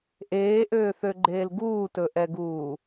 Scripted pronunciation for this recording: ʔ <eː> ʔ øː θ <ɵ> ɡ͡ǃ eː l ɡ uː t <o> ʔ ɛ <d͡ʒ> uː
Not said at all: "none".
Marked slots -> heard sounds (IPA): eː, ø, ɵ, ɡ

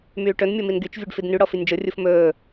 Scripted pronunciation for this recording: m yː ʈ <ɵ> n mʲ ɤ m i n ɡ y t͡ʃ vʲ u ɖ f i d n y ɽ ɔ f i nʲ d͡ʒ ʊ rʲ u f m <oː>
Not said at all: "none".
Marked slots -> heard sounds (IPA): ɵ, ɵː

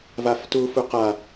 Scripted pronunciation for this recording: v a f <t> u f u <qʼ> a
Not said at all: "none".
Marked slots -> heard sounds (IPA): t, q

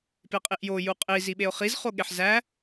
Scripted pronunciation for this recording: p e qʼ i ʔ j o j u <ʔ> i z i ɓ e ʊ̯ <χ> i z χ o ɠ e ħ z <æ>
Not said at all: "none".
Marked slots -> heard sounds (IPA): qʼ, χ, æ

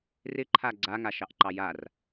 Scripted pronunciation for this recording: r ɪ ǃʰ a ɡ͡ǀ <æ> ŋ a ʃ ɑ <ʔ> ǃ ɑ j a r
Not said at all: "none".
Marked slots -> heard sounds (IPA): a, ʔ

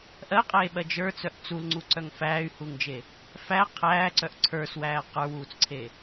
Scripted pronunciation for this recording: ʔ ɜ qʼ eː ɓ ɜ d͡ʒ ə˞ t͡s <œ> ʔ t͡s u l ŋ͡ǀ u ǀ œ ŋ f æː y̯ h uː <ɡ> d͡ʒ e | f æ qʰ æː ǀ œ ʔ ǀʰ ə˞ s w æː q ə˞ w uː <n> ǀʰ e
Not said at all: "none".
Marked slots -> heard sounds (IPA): œ, ŋ, t͡s

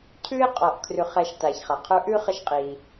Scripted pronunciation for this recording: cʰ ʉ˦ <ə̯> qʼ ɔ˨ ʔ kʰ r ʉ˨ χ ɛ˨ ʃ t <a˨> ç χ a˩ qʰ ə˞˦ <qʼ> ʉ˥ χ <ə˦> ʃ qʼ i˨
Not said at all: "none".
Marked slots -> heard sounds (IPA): ɪ̯, a˩, ʔ, ə˦

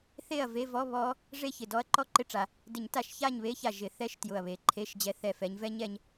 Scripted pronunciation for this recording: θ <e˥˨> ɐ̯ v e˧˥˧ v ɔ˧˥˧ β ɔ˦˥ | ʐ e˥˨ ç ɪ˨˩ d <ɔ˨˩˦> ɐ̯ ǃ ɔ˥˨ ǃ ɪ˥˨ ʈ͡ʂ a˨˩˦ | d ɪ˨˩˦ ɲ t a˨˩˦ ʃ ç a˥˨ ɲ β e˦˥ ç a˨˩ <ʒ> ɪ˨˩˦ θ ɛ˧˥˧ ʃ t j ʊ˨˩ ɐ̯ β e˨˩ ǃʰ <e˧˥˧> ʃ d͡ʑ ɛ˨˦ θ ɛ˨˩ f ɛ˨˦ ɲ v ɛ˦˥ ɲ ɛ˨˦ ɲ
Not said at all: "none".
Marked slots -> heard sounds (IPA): e˥˨, ɔ˦˥, ʒ, e˧˥˧

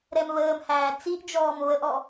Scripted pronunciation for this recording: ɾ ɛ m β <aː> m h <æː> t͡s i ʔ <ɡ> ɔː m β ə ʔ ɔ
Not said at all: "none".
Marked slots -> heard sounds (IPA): əː, æː, d͡ʒ

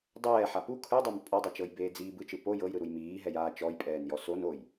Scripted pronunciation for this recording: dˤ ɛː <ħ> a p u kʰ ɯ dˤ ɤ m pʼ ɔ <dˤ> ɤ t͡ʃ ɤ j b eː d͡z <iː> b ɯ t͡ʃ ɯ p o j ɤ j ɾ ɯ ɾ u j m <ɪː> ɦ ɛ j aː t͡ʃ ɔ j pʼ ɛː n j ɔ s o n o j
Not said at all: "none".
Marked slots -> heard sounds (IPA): ħ, dˤ, iː, iː

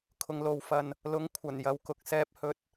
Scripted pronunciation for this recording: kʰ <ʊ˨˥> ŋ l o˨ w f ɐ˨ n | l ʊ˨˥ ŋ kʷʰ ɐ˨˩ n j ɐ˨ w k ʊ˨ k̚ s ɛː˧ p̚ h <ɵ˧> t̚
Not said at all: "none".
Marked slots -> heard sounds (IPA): ʊ˨, ɵ˧

